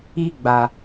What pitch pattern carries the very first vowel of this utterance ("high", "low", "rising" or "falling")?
high